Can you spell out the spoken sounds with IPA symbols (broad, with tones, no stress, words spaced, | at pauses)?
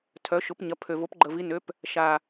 tʰœ˩˥ʃʊ˩˥p ɲɐ˩˥pʰø˨˩ vo˩˥pɡ͡ǃə˨˩vi˩˥nø˩˥p | ʃa˨˩